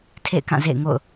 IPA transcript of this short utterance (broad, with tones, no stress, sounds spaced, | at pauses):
tʰ ḛ˦˨ ɪ̯ k ã˦˨ z ḛ˦˨ ɪ̯ ŋ o̰˦˨ ʊ̯